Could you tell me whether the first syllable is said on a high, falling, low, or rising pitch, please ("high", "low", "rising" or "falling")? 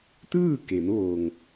falling